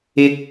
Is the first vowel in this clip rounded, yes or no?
no